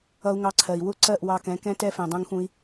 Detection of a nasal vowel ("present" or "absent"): present